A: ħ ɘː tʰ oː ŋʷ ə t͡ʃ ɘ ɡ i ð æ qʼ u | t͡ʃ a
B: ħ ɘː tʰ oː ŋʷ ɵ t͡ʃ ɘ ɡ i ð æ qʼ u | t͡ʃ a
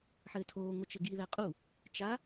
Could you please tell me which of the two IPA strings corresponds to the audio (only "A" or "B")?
A